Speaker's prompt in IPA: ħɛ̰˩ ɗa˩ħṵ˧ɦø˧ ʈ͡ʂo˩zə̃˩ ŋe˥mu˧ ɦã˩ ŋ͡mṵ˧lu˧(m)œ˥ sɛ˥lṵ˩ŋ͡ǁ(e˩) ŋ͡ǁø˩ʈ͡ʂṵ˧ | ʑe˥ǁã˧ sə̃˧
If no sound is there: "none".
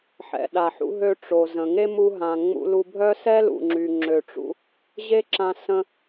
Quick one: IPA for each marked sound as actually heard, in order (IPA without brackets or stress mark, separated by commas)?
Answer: bʱ, y˩